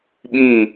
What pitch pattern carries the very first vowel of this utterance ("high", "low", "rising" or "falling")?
falling